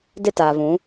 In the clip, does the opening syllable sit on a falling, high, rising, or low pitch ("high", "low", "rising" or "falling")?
high